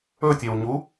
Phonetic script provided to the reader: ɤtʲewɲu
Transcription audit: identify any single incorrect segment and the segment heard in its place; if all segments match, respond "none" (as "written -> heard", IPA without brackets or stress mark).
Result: ɤ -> ɵ